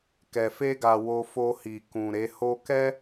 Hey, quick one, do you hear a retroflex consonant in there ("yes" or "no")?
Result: no